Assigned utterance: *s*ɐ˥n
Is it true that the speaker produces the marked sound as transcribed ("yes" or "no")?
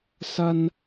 yes